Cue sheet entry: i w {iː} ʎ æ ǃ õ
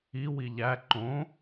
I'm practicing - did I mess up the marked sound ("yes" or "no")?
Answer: yes